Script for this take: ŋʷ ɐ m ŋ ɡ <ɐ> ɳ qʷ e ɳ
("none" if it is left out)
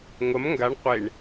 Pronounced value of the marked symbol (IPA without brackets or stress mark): a